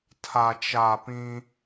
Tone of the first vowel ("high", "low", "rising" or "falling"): low